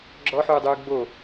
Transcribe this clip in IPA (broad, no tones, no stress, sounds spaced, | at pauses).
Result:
ɡ͡ǁ ɔ ħ uː dˤ uː ɡ͡b o